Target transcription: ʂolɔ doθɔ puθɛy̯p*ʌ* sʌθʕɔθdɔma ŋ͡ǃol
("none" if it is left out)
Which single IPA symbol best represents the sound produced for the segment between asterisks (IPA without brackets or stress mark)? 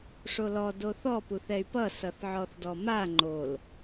ʌ